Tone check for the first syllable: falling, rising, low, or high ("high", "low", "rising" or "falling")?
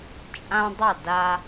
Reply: high